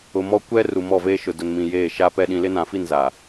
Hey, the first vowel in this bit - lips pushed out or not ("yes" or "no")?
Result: yes